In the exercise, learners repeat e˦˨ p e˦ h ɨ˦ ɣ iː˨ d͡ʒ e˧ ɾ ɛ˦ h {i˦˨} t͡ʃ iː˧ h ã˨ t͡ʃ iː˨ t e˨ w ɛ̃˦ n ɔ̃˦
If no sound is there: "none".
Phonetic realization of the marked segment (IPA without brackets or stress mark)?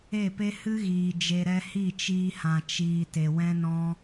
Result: i˦˨